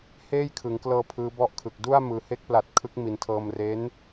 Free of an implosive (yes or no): yes